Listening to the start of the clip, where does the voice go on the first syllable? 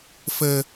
low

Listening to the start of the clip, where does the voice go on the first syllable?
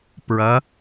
rising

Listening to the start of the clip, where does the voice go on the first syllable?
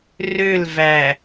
falling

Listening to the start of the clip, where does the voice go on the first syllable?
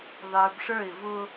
low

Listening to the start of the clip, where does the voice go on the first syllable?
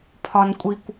low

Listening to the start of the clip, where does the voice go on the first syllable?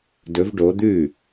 rising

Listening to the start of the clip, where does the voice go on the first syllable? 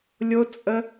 high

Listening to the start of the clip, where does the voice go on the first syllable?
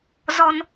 high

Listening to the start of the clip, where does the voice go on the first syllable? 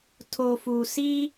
low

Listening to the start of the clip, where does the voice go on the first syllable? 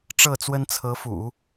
falling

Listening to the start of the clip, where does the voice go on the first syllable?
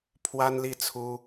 high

